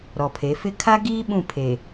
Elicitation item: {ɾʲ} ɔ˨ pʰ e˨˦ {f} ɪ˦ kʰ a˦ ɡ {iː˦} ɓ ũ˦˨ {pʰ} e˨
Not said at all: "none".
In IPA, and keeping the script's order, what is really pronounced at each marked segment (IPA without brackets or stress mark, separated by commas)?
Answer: ɾ, f, iː˦, pʰ